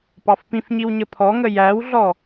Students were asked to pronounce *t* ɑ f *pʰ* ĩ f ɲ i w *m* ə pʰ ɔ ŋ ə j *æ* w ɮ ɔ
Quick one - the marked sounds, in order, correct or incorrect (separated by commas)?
incorrect, incorrect, incorrect, correct